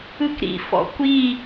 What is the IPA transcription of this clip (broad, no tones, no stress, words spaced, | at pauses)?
ɯkɾḭfɔ̰ kʷi